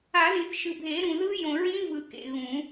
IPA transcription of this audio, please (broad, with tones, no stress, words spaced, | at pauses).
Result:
a˨˩˦ðĩ˨θ ʃɯ˨bʱe˨˩˦ɾũ˨ ðɯ˦˥ jõ˨ɹĩ˦˥vɯ˨ kḛ˨ɣũ˨˩˦